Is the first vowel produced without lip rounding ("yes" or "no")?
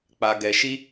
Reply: yes